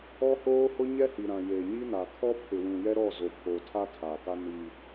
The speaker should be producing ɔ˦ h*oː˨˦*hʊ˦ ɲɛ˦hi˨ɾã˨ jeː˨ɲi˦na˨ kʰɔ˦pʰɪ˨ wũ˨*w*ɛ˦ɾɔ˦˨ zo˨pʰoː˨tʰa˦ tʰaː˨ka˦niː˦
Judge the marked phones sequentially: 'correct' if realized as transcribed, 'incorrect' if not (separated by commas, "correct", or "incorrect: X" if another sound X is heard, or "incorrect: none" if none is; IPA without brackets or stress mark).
incorrect: oː˦, incorrect: j